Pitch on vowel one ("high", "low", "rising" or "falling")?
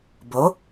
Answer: rising